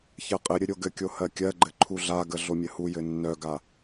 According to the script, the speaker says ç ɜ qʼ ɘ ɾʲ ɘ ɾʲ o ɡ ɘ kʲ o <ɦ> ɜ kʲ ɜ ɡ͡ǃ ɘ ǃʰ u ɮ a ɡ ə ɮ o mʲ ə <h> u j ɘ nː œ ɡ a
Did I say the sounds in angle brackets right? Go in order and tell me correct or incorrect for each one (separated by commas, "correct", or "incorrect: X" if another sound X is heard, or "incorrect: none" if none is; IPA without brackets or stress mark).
incorrect: h, correct